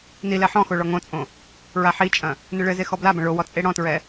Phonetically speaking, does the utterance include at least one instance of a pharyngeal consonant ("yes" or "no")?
yes